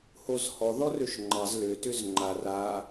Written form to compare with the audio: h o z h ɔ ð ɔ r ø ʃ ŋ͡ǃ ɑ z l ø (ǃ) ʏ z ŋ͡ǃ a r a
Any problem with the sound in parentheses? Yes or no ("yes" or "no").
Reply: yes